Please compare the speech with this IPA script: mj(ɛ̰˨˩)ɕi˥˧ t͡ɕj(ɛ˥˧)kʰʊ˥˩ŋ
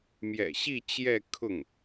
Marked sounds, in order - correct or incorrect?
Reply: correct, correct

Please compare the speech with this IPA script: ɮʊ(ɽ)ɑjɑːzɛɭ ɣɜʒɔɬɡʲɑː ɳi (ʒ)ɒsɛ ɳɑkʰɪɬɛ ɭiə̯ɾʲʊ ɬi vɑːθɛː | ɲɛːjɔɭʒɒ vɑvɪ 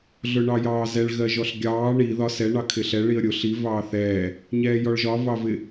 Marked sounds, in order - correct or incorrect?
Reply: incorrect: ɳ, incorrect: ð

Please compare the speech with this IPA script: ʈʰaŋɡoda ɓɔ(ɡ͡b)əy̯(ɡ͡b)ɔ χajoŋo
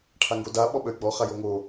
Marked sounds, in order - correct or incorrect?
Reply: incorrect: ɓ, correct

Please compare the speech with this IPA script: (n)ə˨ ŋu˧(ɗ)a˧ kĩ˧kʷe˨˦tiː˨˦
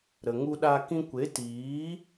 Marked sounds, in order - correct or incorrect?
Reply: incorrect: ɾ, correct

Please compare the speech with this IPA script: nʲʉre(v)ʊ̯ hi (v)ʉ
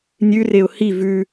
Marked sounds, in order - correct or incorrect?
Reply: incorrect: none, correct

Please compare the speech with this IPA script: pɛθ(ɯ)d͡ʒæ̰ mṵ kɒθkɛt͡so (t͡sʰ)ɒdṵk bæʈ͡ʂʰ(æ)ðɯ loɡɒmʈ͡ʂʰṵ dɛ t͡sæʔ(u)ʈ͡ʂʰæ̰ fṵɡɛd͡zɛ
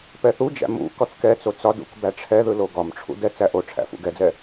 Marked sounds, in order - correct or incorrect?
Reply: incorrect: u, incorrect: t͡s, incorrect: ɛ, incorrect: o

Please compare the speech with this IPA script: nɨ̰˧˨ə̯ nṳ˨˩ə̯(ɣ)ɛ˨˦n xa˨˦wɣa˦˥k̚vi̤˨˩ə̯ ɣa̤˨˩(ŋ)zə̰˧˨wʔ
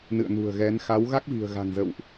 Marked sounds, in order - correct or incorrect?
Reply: correct, correct

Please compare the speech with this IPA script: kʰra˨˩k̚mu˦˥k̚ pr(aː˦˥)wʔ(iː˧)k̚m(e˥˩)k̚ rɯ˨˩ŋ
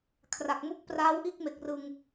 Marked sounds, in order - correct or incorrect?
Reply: correct, incorrect: iː˥˩, incorrect: e˨˩

